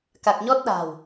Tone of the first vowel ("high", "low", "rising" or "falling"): low